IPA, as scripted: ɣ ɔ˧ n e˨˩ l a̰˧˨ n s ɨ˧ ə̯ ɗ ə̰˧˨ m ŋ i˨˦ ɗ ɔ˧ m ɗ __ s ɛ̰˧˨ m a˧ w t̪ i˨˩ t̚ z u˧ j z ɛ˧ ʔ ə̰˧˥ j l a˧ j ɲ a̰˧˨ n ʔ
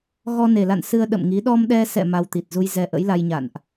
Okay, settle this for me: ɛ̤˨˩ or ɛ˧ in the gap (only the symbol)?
ɛ˧